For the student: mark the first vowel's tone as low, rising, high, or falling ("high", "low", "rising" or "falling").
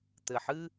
low